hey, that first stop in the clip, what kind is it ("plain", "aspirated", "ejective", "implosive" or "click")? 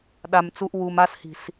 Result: implosive